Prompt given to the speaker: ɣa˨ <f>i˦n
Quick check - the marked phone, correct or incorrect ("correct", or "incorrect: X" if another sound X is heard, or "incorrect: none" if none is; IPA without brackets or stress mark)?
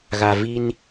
incorrect: v